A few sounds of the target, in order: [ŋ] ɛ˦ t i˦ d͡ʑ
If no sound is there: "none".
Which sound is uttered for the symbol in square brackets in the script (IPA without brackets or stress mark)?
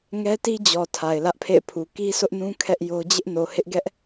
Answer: ŋ